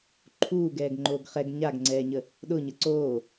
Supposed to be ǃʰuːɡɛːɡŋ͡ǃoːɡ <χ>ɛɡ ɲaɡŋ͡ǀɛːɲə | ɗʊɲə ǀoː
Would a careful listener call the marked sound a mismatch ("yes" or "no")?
no